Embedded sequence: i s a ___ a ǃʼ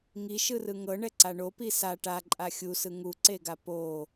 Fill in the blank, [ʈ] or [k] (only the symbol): ʈ